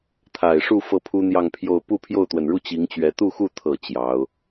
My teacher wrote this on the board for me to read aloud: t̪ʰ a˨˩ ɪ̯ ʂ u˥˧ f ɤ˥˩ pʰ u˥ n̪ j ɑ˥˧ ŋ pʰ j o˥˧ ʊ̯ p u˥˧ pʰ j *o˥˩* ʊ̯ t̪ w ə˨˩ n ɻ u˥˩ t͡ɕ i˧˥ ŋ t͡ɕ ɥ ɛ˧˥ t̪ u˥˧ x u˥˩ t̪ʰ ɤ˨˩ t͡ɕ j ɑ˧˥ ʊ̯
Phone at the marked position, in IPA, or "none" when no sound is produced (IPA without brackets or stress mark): o˥˩